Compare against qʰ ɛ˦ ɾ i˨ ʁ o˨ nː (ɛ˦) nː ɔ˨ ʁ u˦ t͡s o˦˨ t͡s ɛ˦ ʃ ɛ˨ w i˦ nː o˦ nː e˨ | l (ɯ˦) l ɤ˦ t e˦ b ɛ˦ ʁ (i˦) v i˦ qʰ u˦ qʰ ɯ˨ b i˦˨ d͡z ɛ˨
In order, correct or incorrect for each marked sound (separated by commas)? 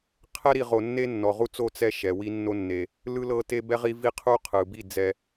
incorrect, correct, correct